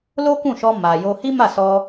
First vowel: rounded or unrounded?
rounded